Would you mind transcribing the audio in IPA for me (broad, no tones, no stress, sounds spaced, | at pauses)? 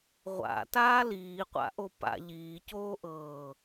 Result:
ʁʷ a̰ t aː l iː qʷ a̰ ʔ o p a̰ ʎ iː c oː ʔ ɤː